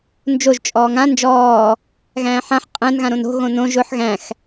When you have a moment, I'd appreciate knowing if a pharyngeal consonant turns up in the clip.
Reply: yes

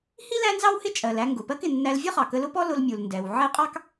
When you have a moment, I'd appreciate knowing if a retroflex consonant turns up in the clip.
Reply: no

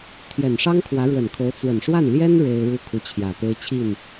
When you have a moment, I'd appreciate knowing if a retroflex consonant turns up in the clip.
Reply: yes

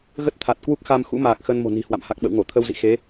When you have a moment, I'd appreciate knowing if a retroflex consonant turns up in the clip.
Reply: no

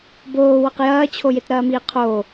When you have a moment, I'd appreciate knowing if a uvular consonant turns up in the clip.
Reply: yes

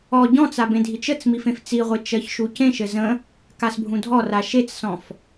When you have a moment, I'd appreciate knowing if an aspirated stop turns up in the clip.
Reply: no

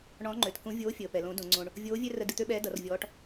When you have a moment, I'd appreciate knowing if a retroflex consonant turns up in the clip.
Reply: yes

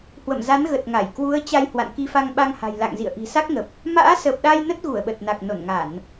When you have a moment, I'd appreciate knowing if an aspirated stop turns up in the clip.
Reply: no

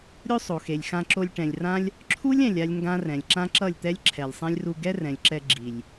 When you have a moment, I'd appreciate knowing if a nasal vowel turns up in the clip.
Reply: yes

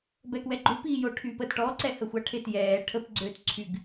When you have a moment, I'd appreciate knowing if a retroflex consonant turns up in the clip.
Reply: yes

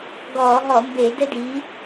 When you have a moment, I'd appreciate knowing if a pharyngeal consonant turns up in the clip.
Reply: no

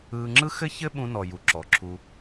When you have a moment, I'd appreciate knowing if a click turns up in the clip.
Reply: yes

